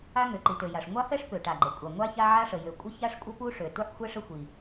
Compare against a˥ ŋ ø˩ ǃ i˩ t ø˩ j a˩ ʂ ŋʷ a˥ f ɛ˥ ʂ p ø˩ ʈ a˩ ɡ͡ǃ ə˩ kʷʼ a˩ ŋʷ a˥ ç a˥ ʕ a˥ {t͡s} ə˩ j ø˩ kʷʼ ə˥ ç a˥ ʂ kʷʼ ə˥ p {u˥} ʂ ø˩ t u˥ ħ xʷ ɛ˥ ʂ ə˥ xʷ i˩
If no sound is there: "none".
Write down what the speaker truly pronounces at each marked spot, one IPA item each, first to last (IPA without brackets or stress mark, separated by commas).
ʂ, u˥